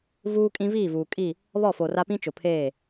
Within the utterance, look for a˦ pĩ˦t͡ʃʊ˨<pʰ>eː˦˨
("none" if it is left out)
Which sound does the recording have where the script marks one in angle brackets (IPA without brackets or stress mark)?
pʰ